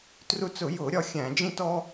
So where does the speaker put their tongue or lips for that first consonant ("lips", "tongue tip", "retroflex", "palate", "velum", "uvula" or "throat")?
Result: tongue tip